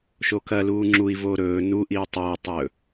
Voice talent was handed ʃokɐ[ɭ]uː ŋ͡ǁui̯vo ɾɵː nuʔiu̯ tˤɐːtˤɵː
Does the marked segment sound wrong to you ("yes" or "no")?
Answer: yes